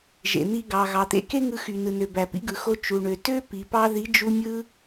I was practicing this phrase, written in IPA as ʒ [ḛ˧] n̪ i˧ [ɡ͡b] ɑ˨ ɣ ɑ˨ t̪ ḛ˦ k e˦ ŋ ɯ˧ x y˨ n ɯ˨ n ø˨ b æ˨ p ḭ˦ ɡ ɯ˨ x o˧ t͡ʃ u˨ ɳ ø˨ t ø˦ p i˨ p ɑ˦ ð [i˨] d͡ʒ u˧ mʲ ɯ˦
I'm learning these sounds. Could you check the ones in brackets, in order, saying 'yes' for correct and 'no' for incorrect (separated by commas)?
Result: no, no, no